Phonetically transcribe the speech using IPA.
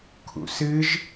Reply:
kʰ ṵ s ɨ ʒ

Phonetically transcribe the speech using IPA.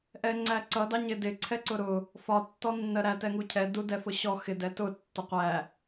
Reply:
ʔ ɛ ŋ͡ǀ æ ǀ ʌ d ɑ ɲ ɪ d ɪ ǀʰ ɛ ǀ ʊ ɾ ʊ | f ɒ tː ɔ nː ɜ ɾ æ t ɛ ŋ u cʰ ɛ d u d ɛ f ʊ ɕ ɔ x ɪ d ɛ t ʊ tː ʊ qʷ æ

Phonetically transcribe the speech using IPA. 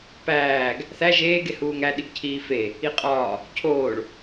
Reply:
p æː ɡ | θ æ ʒ eː ɡ e h uː ŋ æ ɗ i ɡ cʰ iː f e | i qʼ ɒː | cʰ oː ɭ

